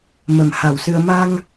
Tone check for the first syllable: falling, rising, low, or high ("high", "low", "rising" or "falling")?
low